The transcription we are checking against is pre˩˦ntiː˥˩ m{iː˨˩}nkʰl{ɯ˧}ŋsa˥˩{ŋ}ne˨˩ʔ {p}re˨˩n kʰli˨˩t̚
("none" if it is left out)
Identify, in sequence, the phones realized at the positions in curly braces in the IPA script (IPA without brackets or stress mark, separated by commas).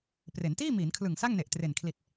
iː˩˦, ɯ˨˩, ŋ, t